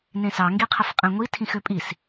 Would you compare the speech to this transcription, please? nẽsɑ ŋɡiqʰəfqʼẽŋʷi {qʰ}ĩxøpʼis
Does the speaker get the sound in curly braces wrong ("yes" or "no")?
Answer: yes